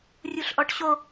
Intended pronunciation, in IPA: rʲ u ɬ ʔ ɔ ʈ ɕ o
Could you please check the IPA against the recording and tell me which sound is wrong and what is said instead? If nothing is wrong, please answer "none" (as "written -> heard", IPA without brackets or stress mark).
none